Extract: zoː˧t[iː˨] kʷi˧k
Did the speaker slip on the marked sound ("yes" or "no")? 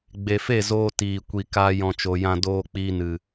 no